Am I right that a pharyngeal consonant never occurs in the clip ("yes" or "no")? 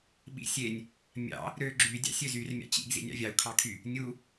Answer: yes